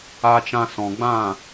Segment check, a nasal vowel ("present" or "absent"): present